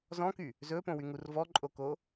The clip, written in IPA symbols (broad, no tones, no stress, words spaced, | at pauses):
zɔ̃ky | zɵpõwyŋur vɔǃʼoko